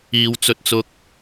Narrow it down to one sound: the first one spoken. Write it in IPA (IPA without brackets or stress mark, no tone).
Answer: iː